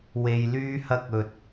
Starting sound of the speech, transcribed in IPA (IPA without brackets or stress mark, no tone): w